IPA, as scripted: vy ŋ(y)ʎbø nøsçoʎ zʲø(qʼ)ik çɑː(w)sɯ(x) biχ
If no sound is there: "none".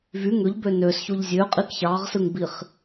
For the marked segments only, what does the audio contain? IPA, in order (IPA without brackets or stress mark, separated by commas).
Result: ø, qʼ, ʁ, ŋ